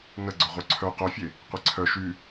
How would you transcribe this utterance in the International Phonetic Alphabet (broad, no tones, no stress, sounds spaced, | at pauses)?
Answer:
n ə ɡ͡ǀ œ ʁʷ œ ǀʰ œ q œ fʲ e | qʷ i ǀʰ œ ʃ y